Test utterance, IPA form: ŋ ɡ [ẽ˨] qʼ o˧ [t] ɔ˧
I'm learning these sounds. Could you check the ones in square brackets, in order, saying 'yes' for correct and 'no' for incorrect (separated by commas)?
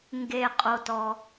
no, yes